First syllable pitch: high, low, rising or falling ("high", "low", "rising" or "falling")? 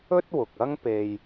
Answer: high